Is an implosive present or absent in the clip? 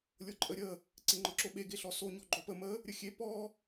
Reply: present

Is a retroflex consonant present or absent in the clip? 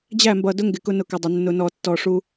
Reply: present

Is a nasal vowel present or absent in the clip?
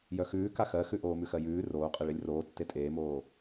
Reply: absent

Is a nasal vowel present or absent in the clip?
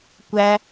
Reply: absent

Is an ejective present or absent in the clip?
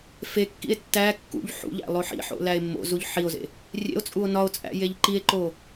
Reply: present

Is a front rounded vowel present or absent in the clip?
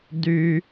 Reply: present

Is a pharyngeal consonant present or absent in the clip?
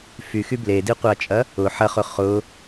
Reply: present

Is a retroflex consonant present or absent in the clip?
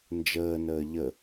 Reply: absent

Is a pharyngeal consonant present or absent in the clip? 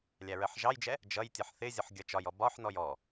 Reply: present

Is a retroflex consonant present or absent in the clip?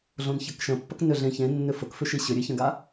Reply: absent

